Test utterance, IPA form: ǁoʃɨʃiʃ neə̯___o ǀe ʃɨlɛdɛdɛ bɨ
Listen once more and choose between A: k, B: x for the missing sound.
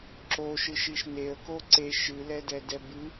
A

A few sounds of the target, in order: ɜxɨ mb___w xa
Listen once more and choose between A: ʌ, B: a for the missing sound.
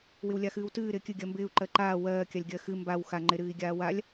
B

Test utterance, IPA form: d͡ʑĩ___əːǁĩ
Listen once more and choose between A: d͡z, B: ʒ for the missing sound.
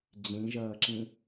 B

